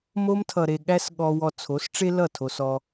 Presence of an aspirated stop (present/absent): present